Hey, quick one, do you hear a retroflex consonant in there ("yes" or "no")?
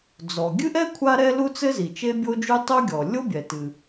no